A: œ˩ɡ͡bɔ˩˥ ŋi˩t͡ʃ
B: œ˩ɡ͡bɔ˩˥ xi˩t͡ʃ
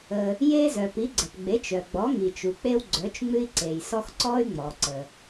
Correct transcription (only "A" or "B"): A